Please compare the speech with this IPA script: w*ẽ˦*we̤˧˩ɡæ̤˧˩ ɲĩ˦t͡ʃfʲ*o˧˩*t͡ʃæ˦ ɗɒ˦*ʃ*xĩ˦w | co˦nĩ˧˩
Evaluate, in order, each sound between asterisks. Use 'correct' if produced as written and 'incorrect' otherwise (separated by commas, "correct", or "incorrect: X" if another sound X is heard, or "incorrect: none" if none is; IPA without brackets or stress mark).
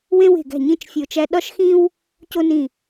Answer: correct, correct, correct